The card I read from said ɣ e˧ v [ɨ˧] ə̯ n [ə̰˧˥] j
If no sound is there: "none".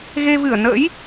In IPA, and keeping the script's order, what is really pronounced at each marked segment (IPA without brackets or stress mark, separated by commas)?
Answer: ɨ˧˩, ə̰˧˥